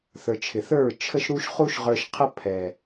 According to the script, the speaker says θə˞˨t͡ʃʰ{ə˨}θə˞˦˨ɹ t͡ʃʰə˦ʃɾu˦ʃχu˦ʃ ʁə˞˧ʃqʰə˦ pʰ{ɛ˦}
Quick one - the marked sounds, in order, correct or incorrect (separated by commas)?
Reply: incorrect, incorrect